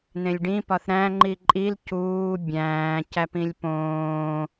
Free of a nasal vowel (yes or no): no